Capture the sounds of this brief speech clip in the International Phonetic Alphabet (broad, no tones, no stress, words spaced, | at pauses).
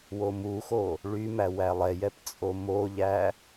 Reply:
womuxo | ɭymæ wælˠɛjɛp t͡sʼomoʎæ